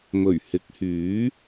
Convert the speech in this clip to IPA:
m ɵ˨˩ ɥ h ɪ˨˥ k̚ h yː˨˥

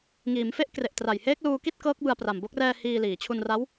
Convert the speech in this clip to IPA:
ŋ iː˩˦ m f e˦˥ ʔ k r e˨˩ ʔ t r a˨˩ j h eː˦˥ k̚ l uː˧ k i˥˩ t̚ k ɤː˦˥ k̚ b ɯ˧ a̯ p r a˨˩ m b o˦˥ k̚ r ɛː˧ h iː˧ l iː˩˦ t͡ɕʰ u˧ n r a˦˥ w

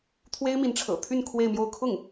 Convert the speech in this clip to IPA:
t̪ʰ w e˥ ɪ̯ m i˧˥ n ʈ͡ʂʰ ɤ̰˨˩ t̪ʰ y˥˧ n kʰ w e˥˧ ɪ̯ m j o˥˧ ʊ̯ kʰ ʊ˥˩ ŋ

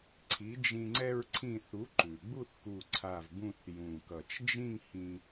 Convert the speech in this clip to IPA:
ǀʰ i˩˥ d͡ʒ ĩ˧ ŋ͡ǀ ɛ˧ ɹ ǀʰ ĩ˧˩ θ u˩˥ ǃ ʉ˩ ɡ͡b u˥˧ θ k u˧˩ ǀʰ a˧˩ v b ũ˥˧ θ j ũ˧˩ k ʌ˧˩ t͡ʃ d͡ʒ ĩ˥˧ ŋ h ĩ˧

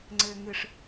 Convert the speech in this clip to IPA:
ŋ͡ǀ ɘː˨ ŋ ɨ˨ ʂ

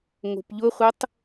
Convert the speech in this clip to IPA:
ŋ o̤ p ʎ ʊ χʷ ə tˤ

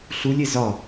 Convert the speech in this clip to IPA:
ɬ u lʲ e z ɒ

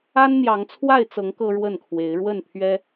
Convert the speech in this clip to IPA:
a˦ n n̪ j ɑ˨˦ ŋ t͡sʰ w a˥˨ ɪ̯ t͡s ɤ˨˦ ŋ k ɤ˦ ɻ w ə˥˨ n kʰ w e˨˦ ɪ̯ ɻ w ə˥˨ n pʰ ɥ ɛ˦

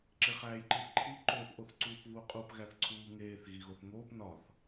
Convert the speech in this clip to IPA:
ǁ e χ æː j ǃ i θ ǃʰ i ǃ o θ ʔ o θ ǀ uː p β u qʼ u p ɣ æ θ ǀʰ uː ŋ eː θ ɣ i ɣ o θ ŋ oː p n ɒ θ

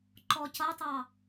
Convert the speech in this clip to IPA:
ǃ ɔ c ʌ tˤ ɑ

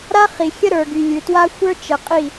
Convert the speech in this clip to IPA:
ɾ a˦ χ i˨ xʲ ə˦ ɾ ə˞˨ ɡ y˨ lʲ ʉ˨ t w a˦ xʷ ə˞˦ t͡ʃ ə˨ qʼ i˦˨

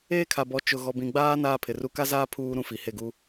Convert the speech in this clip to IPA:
eː˦ kʰ a˨ b ɔ˨˦ t͡ʃ ʊ˨ ɣ ɔ˨ b ĩ˨ ɡ͡b aː˦ n aː˦ pʰ ɪ˨ r u˦ k a˦ z aː˦ pʰ uː˦ ɾ ũ˦ f i˨ h e˦˨ ɡ u˦

